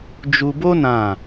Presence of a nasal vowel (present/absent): present